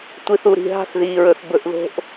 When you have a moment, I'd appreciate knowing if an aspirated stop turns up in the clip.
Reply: no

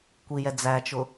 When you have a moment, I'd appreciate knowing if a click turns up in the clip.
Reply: no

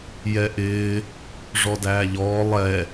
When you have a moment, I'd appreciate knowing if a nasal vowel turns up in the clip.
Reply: no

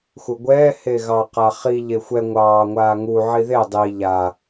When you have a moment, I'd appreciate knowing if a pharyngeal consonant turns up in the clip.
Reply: yes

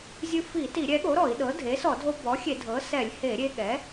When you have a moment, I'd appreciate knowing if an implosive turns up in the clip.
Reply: yes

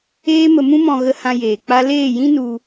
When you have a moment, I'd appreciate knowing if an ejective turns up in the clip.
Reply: no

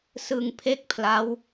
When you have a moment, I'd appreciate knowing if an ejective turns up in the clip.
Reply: no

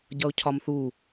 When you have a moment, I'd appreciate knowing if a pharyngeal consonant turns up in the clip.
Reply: no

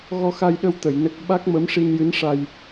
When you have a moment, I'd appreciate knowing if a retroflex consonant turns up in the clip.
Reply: yes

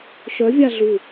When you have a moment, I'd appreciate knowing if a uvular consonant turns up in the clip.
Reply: no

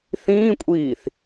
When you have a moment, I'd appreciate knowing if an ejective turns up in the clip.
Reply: yes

